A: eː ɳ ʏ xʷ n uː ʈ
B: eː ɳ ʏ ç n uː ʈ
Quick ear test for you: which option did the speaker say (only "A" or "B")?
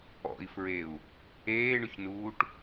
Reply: B